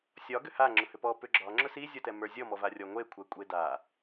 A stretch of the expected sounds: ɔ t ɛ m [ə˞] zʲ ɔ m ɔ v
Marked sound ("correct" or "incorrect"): correct